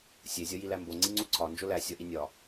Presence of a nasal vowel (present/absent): absent